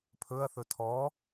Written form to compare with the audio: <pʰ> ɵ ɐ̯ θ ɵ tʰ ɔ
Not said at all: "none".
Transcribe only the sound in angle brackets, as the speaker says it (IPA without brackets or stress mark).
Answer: pʰ